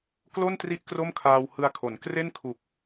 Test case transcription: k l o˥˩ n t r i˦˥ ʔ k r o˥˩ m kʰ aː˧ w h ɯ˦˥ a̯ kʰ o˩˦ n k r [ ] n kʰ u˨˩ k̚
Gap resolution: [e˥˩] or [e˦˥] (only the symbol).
e˥˩